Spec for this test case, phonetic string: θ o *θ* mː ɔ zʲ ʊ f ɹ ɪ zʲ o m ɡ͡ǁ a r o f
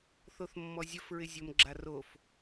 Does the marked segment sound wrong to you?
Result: no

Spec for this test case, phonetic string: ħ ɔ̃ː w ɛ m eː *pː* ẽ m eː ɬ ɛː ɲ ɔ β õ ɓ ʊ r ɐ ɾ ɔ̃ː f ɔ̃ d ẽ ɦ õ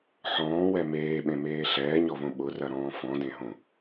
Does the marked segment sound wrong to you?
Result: yes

